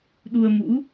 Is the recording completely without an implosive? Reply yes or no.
no